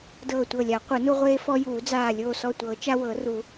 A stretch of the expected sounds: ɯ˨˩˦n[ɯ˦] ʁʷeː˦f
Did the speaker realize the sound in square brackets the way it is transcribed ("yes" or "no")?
no